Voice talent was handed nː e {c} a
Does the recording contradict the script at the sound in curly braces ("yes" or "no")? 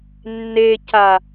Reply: no